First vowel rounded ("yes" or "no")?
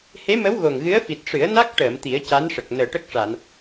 no